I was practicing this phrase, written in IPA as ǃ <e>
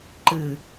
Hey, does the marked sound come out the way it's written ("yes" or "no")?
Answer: no